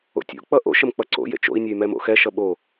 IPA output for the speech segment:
o̰ tʲ o̰ k͡p ʌ ʔ o̰ ʃ ə m k͡p ʌ ǀ o̰ j ḛ t͡ʃ o̰ i̯ nʲ ɛ y̯ m ɛ m o̰ x ɛ ʃ ʌ ɓ o

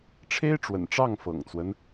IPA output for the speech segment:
ʈ͡ʂʰ e˥ ɪ̯ ʈ͡ʂ w ə̰˨˩ n ʈ͡ʂ ɑ˥˩ ŋ f ɤ̰˨˩ ŋ t͡s w ə˦ n

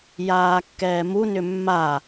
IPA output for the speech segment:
j aː kː ɛː m u n ʏ mː a

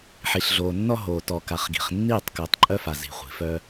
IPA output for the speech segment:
ħ i˨ ɬ ɮ oː˨ nː ɔ˦ ɦ oː˨ t ɔ˨ k a˨ χ ɡ i̤˨ χ nː iː˦˨ tˤ k œ˨˦ tˤ ǃʼ œ˦ f a˨ z i̤˨ χʷ i̤˨ f œ˦

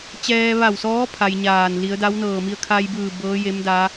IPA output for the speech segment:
t͡ɕ ɛː˧ ʋ a˧˩ w s ɔː˧˥ pʰ a˧ j ɲ aː˧˩ n l i˩˧ ə̯ d a˧˥ w n ɤː˧˩ m i˧ ə̯ kʰ a˧ j b ɯː˧˩ b ɤː˧˥ j e˧˥ m d a˧˥

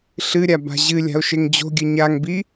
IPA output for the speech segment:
ɬ ɨ ɾʲ a b a̤ ʑ ɨ lʲ a̤ o̯ ʃ e ŋ d͡ʑ o̤ ɡʲ ɘ ɲ a ŋ b i

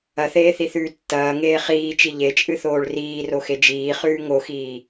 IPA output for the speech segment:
ɐ θ eː θ i θ ʉː tː ɐː ŋ eː χ iː t͡ʃ i ʎ e t͡ʃʼ ɨ θ oː ɭ r iː r o x e d͡ʒ iː χ ʉː ŋ o x iː

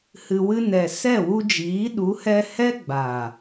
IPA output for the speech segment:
h ɨ˨ w ɨ˧ n ɛ˨ s ɛ˦˨ w u˧ d͡ʒ iː˨˦ ɗ u˨˦ h ɛ˧ h ɛ˦ ɡ͡b a˨

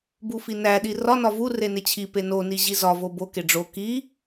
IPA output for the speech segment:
b u f i n æ ɗ i r ɒ n ɒ v u r e n e t͡ɕʰ i p e n o n i ʑ i z ɒ v o b o k e ɖ͡ʐ o k i

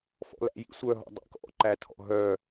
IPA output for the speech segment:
f ɔ̰ l æ̰ j ḭ sʷ œ ɦ ɔ̰ dˤ ḭ k ɔ̰ ǃ æ tʰ ɔ̰ ɦ œ

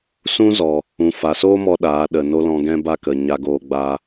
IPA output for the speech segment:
s ũ˦ z ɔ˨ | ũ˨ f a˨ s oː˦ m ɔ˦ ɗ aː˨˦ ɗ ə˨ n o˦ l ɔ̃˧ ɡ ɛ̃˦ b a˦ k ə˨ ɲ a˧ ɡ oː˧ ɡ͡b aː˦

